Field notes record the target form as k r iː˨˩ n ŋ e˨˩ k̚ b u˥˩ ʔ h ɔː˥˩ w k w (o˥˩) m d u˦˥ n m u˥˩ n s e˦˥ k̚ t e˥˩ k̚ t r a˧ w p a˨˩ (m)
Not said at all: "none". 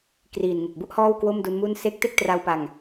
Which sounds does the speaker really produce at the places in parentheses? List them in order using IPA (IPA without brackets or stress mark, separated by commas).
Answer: o˥˩, ŋ